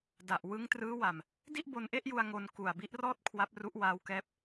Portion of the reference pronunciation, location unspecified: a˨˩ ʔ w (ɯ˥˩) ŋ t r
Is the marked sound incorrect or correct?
incorrect